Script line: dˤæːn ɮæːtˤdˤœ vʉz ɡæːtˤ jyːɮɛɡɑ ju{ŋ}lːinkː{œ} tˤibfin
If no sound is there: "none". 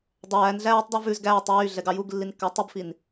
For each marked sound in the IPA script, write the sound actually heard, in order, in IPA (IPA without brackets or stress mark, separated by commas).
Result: ɡ, æ